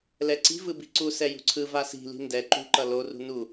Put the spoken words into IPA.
lɛǀi̤vɯ bi̤ǀusɛ jṳǀʰɯva si̤li̤ ndɛ ǃṳǃʌ lorṳ nu

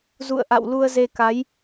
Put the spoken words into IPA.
zṵ˧˨ə̯ʔa̰˧˨w lu˧ə̯ze˧ka˨˦j

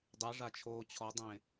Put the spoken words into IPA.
dˤeʐat͡ʃʰoː t͡ɕʰɔdˤẽ

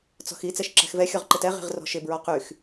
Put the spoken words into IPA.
t͡sɔ̤xi t͡sɛʃǁɛ̤xvɛ xʲɔʁǃɪtɛ ʁi̤ʁrɔ̤ʃɪ bɹɔqyx

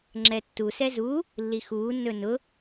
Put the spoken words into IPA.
ŋ͡ǁɛtːu sɛzu | lːixuː nːɵnʊ

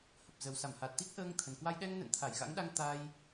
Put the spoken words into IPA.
hə˨˩p̚zə˨˩w sa˧˩mha˨˩t̚t̪i˦˥k̚ ʔəː˧ŋt̪ʰə˨˩nkwa˧j ɗɛ˧ŋ nə̰˧˨nt̪ʰa˧˩jɣa̰˧˥ŋɗa˧ŋ t̪a˧j

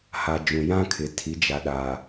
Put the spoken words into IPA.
ha˨d͡ʒũ˨ jã˦kʰɪ˨ tʰi˨˦d͡ʒa˨ɗa˨

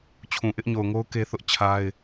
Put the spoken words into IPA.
t͡ɕʰũ˨ʔɪ˦ʔɲo˨ʊ̯ŋo˦ʊ̯ ke˦θʊ˦ʔt͡ɕʰa˦ɪ̯

